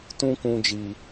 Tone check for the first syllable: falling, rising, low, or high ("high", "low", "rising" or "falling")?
high